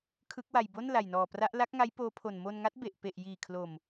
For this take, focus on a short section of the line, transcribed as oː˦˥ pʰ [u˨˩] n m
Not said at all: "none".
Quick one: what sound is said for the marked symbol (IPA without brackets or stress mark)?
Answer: o˨˩